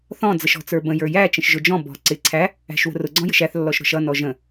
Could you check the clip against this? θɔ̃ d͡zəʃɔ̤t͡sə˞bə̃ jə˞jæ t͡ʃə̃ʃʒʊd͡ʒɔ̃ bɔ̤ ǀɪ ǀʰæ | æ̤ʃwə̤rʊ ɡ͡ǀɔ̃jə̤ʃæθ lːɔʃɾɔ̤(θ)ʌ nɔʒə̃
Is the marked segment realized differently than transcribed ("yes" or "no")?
yes